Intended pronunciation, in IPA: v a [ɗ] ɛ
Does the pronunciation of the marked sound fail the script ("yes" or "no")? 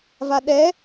no